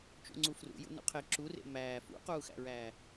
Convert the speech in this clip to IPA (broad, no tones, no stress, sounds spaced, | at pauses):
t͡ʃ ṵ ŋ͡ǀ u f r ṵ j ṵ n ṵ qʰ e ǁ u r ḛ m æː f ṵ q uː x æ̰ ɹ æː